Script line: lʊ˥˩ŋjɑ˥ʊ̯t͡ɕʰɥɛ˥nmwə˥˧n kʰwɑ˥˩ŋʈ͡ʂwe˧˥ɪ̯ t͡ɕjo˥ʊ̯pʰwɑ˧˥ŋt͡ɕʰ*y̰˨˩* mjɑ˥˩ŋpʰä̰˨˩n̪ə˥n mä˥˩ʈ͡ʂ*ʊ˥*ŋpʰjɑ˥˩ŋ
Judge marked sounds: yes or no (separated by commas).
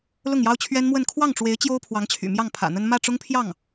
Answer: yes, yes